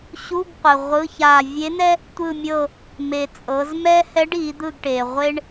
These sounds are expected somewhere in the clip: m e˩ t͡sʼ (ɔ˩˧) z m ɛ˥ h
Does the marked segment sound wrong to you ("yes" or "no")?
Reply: yes